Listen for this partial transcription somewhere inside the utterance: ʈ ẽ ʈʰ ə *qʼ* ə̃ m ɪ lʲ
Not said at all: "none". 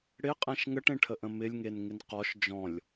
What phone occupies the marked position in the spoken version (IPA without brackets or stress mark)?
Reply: ʔ